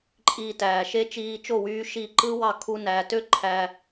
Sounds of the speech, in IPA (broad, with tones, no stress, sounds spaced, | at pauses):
ǃʼ iː˧ t æː˩ ʃ e˥ t͡ʃ iː˧ t͡ʃ o˥˩ w yː˧ ʃ i˥˩ ǃ ɯ˥ w ɑ˥˩ kʰ u˥ n æ˩˥ t ø˥ ǃʰ æ˧